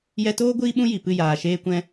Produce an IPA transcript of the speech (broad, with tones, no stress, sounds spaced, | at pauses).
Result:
j ɛ˧ t oː˦ ɡʷ iː˦ ɓ ũ˦ j i˨ p ɨ˦˨ j aː˨ ʃ eː˧ kʷ ɛ̃˧